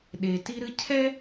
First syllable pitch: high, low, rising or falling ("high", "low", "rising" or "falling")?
low